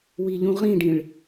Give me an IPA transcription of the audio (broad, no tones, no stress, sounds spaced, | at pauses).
w i ʎ ũ ʁ ĩ ɖ ĩ ɭ